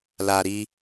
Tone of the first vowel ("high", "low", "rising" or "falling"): low